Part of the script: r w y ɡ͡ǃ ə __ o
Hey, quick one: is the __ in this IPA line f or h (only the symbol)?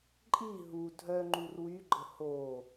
h